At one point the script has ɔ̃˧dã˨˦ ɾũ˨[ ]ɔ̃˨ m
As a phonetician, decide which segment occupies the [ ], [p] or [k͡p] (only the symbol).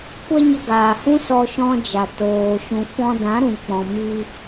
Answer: k͡p